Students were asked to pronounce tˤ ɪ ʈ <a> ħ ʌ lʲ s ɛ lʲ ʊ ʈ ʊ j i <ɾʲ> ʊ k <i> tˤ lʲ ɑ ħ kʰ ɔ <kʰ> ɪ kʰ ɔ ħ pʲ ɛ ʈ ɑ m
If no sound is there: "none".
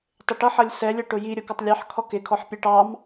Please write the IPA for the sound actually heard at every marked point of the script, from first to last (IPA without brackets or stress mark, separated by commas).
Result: ʌ, ɾʲ, ɪ, k